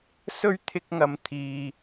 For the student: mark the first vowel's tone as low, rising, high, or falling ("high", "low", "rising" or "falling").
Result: high